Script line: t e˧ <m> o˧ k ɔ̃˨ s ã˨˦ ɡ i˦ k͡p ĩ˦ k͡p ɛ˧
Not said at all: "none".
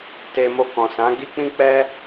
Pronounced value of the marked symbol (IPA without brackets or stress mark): m